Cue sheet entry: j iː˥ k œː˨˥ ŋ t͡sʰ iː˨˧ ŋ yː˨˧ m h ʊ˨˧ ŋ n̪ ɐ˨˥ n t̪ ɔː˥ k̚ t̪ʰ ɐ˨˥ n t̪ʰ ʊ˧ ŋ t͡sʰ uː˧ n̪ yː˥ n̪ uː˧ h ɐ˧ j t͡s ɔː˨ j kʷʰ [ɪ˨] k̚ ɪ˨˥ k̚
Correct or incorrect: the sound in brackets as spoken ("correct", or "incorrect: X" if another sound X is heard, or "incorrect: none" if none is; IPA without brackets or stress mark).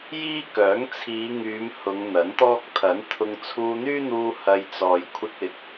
incorrect: ɪ˧